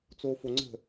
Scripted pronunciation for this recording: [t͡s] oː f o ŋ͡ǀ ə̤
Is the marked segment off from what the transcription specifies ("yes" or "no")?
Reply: no